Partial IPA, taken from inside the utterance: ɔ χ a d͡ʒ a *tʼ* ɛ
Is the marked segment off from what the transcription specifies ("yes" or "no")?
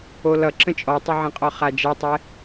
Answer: yes